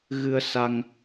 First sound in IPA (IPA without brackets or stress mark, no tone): ɣ